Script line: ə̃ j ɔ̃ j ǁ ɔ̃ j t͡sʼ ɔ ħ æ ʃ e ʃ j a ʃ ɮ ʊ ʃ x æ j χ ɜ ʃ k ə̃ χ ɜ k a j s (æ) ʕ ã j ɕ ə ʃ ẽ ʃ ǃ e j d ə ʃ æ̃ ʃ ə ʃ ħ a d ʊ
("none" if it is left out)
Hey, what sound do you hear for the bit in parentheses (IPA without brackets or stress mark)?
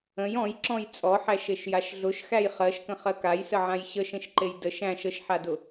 ə